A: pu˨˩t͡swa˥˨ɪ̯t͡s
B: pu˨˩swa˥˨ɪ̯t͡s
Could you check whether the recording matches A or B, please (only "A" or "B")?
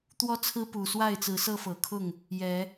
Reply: B